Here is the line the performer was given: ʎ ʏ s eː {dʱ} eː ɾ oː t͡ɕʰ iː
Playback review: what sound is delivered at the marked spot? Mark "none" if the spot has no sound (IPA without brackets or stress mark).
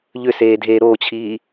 dʱ